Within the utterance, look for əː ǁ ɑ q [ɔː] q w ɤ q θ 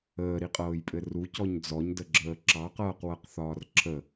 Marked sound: incorrect: ɤː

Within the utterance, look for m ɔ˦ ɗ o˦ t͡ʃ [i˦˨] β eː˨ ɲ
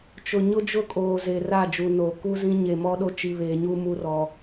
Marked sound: incorrect: i˨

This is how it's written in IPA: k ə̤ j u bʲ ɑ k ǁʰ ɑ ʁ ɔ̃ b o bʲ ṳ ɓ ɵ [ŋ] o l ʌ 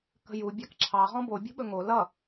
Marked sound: correct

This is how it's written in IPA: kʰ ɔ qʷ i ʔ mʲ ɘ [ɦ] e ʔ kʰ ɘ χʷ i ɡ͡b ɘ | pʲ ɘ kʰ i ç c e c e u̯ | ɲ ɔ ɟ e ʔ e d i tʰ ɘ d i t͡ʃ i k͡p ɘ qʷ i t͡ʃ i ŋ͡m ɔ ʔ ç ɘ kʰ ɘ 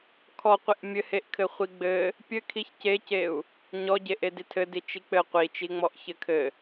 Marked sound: incorrect: h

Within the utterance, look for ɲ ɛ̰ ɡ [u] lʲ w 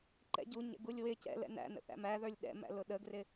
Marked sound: correct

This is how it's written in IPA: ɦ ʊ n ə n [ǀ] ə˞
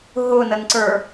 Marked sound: correct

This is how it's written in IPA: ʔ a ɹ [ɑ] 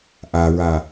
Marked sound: incorrect: a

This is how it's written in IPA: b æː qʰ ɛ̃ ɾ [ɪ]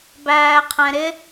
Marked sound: correct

